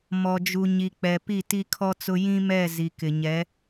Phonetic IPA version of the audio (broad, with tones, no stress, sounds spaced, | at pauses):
m ɔ˨ d͡ʒ u˨ ɲ i˨ k͡p ɛ˨ p i˦˨ t i˦ kʰ ɔ˦ t͡s ʊ˦ j ĩ˦ m ɛ˦˨ z i˨ k ɪ˨ ɲ ɛ˨˦